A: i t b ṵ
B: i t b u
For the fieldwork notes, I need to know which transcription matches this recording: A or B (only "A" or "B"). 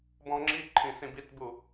B